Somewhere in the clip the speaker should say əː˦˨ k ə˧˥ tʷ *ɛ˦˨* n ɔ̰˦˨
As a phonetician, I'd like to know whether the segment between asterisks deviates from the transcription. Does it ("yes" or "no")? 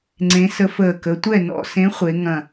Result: no